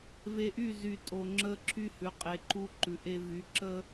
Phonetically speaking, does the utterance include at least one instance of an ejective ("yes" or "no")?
yes